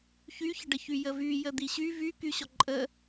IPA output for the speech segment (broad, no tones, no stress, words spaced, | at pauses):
çyçəɖəçy jəvy jəd̪iɕy vykyɕɔ ǃʼə